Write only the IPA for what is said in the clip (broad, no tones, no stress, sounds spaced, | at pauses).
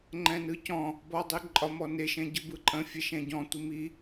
ŋ͡ǃ ɛ̃ n ɯ c ɔ̃ | b ɔ dˤ i ǃʼ ɒ m ɔ n e ʃ ɛ̃ ɟ ɯ b ɯ ǃʼ ə̃ fʲ ɛ ʃ ɛ̃ ɟ ɔ̃ tʷ i m i